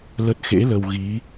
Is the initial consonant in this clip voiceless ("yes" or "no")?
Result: no